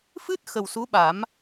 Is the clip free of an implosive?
no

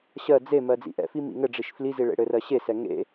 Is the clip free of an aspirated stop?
yes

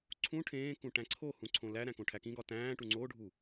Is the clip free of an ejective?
yes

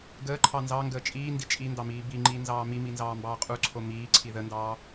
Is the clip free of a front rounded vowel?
yes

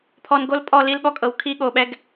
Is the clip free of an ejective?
no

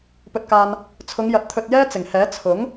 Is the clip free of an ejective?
yes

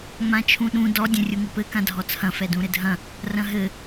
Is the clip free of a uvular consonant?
yes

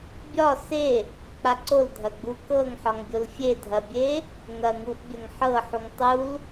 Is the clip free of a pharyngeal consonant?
no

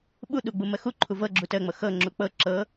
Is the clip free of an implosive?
no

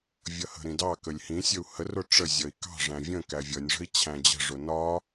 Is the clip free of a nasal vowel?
no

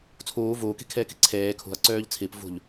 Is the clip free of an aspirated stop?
no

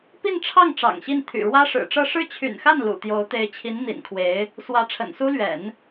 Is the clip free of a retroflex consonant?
no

